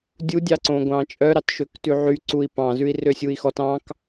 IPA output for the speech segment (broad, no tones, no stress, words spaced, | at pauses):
dʲu dʲɑǀõɡʷɑ̃ːt͡ʃʼœ ɾɑtʃøktʉʕy ǀui̯pɑ̃ zʉi̯røsʲui̯xɔt ɑ̃k